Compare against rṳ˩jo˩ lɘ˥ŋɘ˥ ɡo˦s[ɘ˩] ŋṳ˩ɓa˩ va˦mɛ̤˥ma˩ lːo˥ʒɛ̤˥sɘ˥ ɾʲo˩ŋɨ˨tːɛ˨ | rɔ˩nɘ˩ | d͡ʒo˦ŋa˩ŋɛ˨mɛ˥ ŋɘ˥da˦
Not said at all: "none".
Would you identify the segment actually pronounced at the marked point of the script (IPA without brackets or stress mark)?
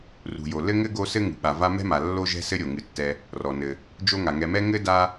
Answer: ɘ˥